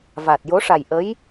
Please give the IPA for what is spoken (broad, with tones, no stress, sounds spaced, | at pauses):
v a˨˩ t̚ j o˧˥ ʂ a˨˩ j ʔ ə˧˥ j